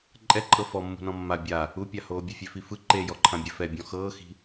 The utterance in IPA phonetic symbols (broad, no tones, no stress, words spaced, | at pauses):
ǃʼɛǃʼɤ fɔ mːṳnɔ̃mːa bʲa | upʲahoː bʲefʲefifɯ ǃejɔǃʰã bʲɛfɛbʲɔ̃ xɤːxi̤